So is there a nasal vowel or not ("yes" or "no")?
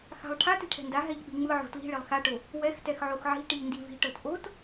no